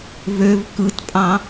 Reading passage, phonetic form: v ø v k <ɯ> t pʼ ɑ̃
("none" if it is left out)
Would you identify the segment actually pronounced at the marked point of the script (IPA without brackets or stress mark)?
ɯ